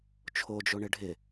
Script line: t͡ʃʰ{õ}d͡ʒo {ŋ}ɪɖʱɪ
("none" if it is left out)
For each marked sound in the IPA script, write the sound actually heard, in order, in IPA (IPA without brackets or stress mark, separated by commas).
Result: o, ɳ